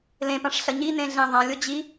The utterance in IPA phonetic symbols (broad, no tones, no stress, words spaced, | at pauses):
lẽpãʂ ɬɐɲinẽ ɮẽðˤãlʲo d͡ʑi